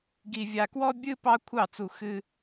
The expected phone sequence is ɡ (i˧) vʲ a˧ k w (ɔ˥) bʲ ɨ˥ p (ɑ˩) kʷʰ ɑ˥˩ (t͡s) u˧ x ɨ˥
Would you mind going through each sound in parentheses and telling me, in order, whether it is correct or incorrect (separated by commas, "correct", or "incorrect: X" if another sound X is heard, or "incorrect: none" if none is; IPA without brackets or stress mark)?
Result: correct, correct, incorrect: ɑ˥, correct